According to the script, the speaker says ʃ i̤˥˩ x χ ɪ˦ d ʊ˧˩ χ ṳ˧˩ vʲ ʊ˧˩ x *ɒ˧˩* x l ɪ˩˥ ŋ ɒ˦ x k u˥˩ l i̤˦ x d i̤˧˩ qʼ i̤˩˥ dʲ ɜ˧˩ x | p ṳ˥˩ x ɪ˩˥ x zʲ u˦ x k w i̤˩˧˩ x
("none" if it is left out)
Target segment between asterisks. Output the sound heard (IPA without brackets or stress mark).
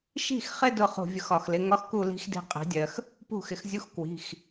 ɒ˧˩